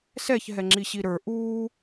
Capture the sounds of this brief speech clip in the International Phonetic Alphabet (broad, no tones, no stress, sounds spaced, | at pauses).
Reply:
s ɛ ç ɦ ɛ ŋ͡ǁ i ɕ i ɾ ə˞ ʔ uː